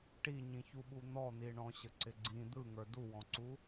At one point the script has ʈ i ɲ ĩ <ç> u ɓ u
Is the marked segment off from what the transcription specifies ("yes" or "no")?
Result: no